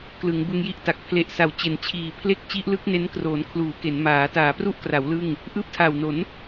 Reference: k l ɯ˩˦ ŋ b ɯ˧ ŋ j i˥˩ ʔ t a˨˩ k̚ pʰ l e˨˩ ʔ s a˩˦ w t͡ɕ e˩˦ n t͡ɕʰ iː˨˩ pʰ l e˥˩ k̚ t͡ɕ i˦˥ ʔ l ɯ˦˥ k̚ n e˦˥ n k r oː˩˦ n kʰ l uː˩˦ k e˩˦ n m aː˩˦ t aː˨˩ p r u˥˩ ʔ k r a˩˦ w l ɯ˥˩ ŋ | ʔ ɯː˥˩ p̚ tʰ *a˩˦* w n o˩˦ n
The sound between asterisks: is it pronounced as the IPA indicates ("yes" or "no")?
no